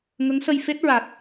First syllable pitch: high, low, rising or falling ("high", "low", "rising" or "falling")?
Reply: rising